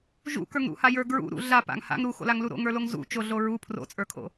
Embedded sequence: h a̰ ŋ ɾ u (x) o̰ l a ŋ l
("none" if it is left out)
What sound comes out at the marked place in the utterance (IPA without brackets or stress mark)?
x